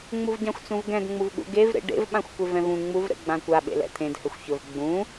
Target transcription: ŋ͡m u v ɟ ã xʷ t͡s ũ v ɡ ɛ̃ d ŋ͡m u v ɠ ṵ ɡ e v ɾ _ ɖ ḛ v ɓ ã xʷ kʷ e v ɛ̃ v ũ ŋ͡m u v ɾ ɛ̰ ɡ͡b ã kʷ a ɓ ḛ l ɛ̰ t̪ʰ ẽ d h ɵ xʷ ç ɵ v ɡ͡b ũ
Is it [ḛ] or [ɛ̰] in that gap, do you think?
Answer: ḛ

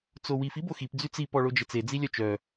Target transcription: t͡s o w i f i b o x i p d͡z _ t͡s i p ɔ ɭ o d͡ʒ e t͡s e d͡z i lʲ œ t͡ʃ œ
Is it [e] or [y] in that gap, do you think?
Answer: y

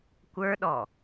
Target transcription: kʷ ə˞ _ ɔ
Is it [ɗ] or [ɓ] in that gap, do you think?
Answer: ɗ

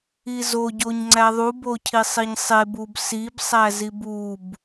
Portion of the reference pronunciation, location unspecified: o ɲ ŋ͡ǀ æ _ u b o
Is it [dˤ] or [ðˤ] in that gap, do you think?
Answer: ðˤ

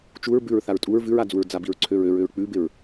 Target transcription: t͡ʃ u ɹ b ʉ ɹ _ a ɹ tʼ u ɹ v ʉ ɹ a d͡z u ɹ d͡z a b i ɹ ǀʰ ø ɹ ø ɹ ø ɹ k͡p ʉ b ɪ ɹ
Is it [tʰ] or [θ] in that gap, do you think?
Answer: θ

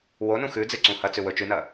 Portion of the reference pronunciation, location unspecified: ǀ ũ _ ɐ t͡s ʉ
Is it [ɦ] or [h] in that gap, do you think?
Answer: h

